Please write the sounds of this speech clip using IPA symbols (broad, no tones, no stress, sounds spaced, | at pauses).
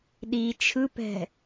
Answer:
ɗ i t͡ʃʰ ɯ p ɛ̤